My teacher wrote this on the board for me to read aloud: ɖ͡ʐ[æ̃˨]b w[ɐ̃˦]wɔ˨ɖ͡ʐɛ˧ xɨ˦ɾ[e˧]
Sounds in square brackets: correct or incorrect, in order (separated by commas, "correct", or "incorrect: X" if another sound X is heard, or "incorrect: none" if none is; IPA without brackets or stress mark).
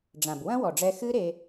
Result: incorrect: ã˨, correct, correct